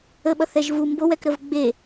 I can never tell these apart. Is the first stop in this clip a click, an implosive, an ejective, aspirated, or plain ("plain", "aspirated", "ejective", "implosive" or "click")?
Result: implosive